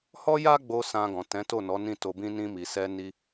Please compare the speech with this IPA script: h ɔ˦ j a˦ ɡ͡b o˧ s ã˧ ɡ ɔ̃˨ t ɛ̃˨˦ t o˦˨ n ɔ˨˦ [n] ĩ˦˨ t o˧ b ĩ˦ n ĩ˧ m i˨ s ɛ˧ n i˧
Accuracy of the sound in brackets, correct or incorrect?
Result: correct